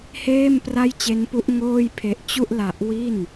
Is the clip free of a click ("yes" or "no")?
yes